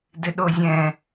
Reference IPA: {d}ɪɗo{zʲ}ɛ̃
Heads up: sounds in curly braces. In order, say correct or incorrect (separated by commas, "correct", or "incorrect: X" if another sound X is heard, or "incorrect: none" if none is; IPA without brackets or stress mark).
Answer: correct, correct